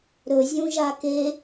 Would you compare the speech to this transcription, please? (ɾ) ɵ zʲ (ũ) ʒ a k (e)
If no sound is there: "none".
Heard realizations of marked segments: ɾ, ũ, e

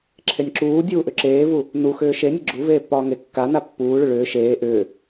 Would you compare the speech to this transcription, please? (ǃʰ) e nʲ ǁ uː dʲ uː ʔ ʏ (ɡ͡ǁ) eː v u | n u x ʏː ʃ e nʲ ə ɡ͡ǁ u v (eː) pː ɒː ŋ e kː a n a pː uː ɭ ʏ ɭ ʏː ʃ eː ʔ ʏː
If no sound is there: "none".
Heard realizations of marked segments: ǁʰ, ǁ, eː

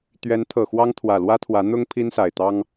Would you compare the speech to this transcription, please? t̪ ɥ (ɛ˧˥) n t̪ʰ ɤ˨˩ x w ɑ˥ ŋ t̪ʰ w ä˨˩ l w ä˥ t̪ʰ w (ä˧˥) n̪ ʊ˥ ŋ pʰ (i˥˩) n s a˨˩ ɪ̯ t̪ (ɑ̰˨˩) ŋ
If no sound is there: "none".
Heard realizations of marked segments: ɛ˧˥, ä˧˥, i˥, ɑ˥

